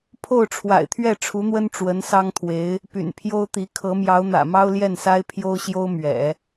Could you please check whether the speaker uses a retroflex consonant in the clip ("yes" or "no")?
yes